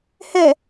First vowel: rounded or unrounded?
unrounded